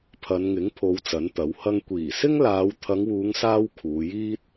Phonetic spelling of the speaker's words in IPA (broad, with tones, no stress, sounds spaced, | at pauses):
pʰ ɐ˨˧ n ŋ ɪ˨˥ ŋ pʰ o˨˧ w t͡s ɐ˨˥ n t̪ ɐ˨˥ w h ɐ˥ ŋ kʷ iː˨˩ s ɪ˥ ŋ l aː˨˧ w t̪ʰ ɐ˨˧ ŋ w uː˨˧ ŋ s aː˧ w kʰ uː˨˧ j iː˥ t̚